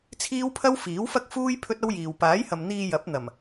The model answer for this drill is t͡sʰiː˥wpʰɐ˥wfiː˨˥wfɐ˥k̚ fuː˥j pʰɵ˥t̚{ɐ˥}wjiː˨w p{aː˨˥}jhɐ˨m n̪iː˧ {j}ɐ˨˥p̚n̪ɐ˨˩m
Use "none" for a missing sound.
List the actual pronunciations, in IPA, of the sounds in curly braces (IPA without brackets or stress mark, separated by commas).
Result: ɐ˥, aː˨˥, j